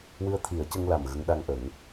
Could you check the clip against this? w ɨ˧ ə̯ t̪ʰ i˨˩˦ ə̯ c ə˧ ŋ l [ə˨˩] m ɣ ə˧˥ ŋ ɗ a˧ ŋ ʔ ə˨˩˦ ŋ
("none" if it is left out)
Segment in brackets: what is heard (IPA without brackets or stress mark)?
a˨˩